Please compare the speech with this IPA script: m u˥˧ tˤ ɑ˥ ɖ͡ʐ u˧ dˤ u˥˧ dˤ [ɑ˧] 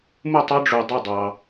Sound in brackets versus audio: correct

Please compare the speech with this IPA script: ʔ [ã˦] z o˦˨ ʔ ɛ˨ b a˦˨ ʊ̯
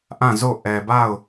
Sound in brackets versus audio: incorrect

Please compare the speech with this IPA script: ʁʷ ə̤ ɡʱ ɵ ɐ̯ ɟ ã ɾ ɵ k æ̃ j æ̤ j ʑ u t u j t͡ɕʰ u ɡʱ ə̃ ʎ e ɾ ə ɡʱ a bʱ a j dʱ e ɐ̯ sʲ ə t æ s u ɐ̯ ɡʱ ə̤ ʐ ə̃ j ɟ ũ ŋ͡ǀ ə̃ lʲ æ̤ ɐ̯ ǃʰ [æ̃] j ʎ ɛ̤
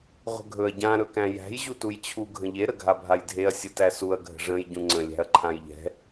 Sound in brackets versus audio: incorrect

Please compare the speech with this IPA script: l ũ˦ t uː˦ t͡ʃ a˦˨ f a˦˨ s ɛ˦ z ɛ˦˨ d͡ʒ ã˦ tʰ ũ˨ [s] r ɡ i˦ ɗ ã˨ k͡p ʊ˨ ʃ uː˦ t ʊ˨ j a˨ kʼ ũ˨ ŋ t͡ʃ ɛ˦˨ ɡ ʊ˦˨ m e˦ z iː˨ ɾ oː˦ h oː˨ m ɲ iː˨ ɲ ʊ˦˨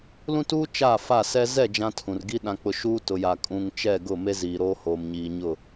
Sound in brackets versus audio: incorrect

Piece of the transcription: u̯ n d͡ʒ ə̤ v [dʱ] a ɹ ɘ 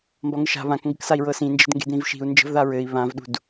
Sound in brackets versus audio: incorrect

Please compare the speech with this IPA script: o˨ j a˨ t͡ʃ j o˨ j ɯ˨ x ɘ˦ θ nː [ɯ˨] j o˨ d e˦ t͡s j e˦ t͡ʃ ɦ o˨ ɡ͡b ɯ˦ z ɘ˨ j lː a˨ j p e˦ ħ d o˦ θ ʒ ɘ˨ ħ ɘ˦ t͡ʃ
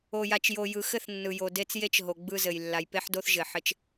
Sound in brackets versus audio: correct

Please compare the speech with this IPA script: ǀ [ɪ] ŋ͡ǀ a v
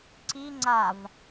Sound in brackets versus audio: incorrect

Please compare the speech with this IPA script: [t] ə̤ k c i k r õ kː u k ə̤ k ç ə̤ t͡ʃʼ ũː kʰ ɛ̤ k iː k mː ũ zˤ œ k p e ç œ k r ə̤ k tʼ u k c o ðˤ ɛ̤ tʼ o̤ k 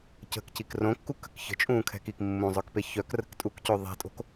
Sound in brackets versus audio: incorrect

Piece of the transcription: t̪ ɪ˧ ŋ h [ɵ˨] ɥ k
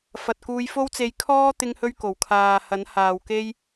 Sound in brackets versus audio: incorrect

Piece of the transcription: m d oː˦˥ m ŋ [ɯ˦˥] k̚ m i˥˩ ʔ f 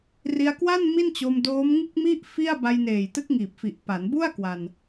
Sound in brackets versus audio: incorrect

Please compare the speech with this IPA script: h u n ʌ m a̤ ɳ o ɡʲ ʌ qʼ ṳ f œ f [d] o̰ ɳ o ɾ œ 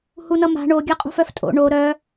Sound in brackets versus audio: incorrect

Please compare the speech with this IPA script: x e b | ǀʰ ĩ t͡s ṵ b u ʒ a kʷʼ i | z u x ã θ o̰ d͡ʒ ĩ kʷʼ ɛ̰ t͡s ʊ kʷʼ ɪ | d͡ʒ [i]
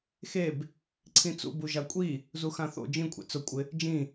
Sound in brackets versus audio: incorrect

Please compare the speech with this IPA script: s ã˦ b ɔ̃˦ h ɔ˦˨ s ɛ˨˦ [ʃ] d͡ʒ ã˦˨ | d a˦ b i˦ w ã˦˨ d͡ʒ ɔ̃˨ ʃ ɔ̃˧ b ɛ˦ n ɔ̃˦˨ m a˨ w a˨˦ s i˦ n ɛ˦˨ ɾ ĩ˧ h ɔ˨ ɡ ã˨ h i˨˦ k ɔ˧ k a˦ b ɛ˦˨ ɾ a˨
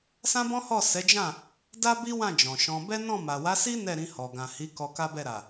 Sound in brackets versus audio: incorrect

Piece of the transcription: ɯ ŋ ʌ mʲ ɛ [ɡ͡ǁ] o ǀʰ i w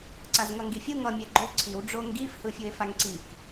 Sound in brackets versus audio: incorrect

